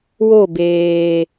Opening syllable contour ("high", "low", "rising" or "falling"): falling